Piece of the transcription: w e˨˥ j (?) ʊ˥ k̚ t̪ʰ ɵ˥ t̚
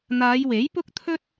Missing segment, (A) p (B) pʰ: A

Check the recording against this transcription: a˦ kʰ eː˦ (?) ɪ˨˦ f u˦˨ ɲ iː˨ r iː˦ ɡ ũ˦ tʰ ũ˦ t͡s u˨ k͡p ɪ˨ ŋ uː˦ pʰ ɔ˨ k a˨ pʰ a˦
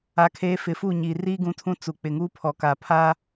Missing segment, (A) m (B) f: B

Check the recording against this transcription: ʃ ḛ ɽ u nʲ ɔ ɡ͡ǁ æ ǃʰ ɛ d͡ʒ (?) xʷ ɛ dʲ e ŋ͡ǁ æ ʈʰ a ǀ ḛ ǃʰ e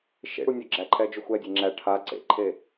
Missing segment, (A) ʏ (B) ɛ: A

